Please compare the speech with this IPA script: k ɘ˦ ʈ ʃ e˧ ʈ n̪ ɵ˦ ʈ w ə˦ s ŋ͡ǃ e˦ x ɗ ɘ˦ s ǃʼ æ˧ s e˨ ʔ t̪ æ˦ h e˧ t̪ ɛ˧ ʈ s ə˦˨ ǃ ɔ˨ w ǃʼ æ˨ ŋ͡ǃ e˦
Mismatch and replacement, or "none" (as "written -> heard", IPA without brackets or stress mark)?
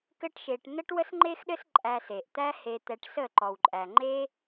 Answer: ɵ˦ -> ə˦